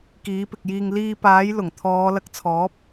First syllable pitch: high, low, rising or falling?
rising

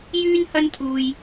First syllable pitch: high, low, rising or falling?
high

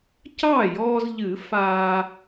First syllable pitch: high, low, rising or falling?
falling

